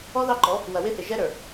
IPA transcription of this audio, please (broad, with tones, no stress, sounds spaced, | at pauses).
ɔ˦ ð ɑ˦ ǃ ɔ˨˦ | w ɐ˨ w ɪ˦ θ ɪ˨ ʒ ɛ˦ ɾ ə˞˨